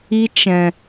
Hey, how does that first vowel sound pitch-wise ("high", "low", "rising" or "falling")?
high